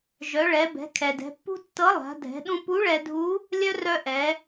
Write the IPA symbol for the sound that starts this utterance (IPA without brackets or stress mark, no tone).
ʒ